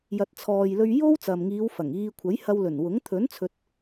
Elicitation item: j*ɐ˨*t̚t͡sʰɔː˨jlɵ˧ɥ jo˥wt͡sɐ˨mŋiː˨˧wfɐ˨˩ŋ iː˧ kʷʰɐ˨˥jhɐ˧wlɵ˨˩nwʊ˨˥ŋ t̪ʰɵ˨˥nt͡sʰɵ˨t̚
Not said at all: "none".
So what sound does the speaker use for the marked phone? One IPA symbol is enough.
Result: ɐ˨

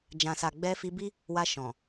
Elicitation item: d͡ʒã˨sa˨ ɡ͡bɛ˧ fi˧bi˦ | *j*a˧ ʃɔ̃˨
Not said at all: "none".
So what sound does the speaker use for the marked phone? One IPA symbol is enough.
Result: w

